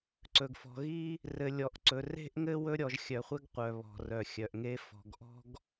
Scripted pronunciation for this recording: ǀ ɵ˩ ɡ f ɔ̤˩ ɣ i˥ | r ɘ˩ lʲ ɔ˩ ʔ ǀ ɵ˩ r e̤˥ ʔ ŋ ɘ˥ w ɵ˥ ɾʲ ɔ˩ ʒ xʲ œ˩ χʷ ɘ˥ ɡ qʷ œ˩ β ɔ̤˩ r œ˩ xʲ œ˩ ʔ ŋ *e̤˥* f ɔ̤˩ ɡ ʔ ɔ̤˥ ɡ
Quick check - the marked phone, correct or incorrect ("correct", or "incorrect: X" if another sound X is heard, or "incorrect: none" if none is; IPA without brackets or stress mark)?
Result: incorrect: e˥